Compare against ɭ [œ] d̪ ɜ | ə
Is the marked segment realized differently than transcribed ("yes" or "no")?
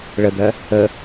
yes